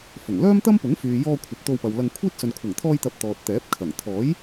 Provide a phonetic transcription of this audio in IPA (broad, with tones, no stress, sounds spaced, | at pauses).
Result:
f ʊ˨˩ ŋ l œː˥ m t̪ ɐ˥ m p ʊ˨˥ ŋ f yː˨ j ɔː˧ kʷʰ ɐ˨ p̚ t̪ o˧ w p ɐ˨ w l ɐ˧ ŋ kʷʰ iː˥ t̚ s ɵ˨ n kʷʰ ɐ˨˩ ŋ t̪ʰ ɔː˧ j t̪ ɐ˨ p̚ t̪ ɔː˨ t̚ t̪ ɛː˨˥ p̚ kʰ ɐ˨˩ ŋ t̪ʰ ɔː˨˥ j